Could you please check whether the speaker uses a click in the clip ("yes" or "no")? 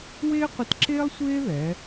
yes